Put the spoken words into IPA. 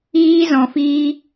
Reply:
iː˦ z ɔ̃˧ f iː˦

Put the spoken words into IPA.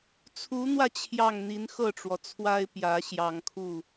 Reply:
t͡sʰ u˧˥ n̪ w ä˧ t͡ɕʰ j ɑ˥˩ ŋ n̪ i˧˥ n x ɤ˥˩ ʈ͡ʂ w ɔ˩ t͡sʰ w a˥ ɪ̯ p j ä˧˥ ɕ j ɑ˨˩ ŋ kʰ u˥˩

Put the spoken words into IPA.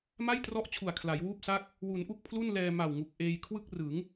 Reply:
m a˥˩ j t r ɔ˦˥ ʔ t͡ɕʰ u˨˩ a̯ kʰ l a˩˦ j w uː˥˩ p̚ s a˥˩ k̚ | w u˩˦ n ʔ u˥˩ k̚ pʰ l u˥˩ n l ɛː˧ m a˨˩ w ŋ u˨˩ k̚ ʔ eː˧ j kʰ w ɯ˥˩ k̚ r ɯ˩˦ ŋ

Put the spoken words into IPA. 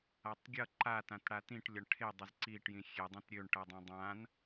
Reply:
a tˤ ɡʲ ʌ ǃ a t ã t ɽ a t ĩ ʈ lʲ ʌ ɳ ʈʰ e dˤ ə z ǀ i ʈ j ĩ xʲ e dˤ ĩ t ɾʲ ø ɳ ʈ ʌ dˤ ã dˤ ã n

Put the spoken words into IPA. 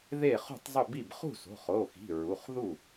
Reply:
ð e˥˩ χ ṳ˥˩ tˤ zˤ ʊ˥˩ b i˥˩ b χ ṳ˥˩ s o̤˩˧˩ χ o˩˧˩ x i̤˩˧˩ ɹ u˩˧˩ χ ð u˥˩

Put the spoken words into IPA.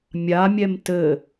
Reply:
mʲ a mʲ ɛ m t ɘ

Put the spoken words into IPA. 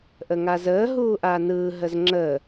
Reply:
ʔ ə ŋ a z əː ɦ uː ʔ a n ɯː ɦ ə z ŋ͡ǁ əː

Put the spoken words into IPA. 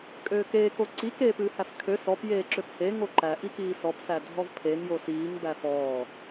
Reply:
kʼ øː k eː k o ǀ i k eː p ɨː h æ f kʰ ø s ɔ p j eː ǁ ø p h e ŋ o ǃ æ ʔ i k iː s ɔ p s æ dʱ ɔ v pʰ e ŋ j o s iː ŋ b æ f ɔː

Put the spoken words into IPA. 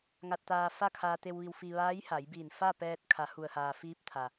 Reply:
ŋ a˧ t̚ t̪ aː˧ f a˥˨ kʰ aː˧ t̪ e˧ w ʋ i˧ w f i˧ ʋ aː˧˥ j h a˩˧ j b iː˧˩ n f a˥˨ p ɛː˧ t̚ kʰ a˩˧ h u˩ ə̯ h aː˩ f iː˧ p̚ t̪ʰ a˩

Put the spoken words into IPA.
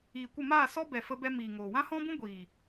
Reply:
iː˨ kʷ ə˦˨ m aː˦˨ s ɔ˦ b ɛ˨ f ə˧ b ɛ˧ m iː˨ ŋ oː˨ w ã˦ h ɔ̃˦ b ũ˦ ɡʷ iː˨

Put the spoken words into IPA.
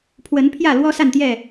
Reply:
pʰ w ə˨˦ n pʰ j ä˥˨ l w ɔ˦ s a˥˨ n t̪ j ɛ˥˨

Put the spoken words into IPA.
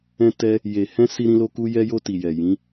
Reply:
ɛ̃˧ t ɛ˧ | j e˨ h ɛ̃˧ s i˧ ɾ ĩ˧ l o˧ k u˧ j ɛ˧ j o˧ t i˨ j ɛ˨ j ĩ˨˦

